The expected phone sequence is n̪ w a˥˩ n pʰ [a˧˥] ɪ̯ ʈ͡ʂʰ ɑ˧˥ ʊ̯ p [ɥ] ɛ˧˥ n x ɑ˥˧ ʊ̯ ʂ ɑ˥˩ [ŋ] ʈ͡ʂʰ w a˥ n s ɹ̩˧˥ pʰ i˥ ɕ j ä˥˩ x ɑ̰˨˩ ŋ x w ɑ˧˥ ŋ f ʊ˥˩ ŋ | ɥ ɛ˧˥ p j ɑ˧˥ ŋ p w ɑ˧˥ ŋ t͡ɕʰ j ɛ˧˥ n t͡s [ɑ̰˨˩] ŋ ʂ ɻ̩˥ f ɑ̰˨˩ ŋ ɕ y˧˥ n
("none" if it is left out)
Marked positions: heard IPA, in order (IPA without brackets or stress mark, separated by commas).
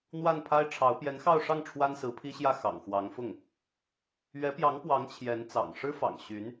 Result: a˥, j, ŋ, ɑ̰˨˩